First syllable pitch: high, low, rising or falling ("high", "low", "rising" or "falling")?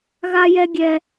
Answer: high